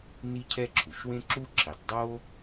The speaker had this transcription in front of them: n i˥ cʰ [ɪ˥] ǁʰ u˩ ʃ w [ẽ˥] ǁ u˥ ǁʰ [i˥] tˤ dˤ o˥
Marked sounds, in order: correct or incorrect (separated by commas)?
incorrect, correct, incorrect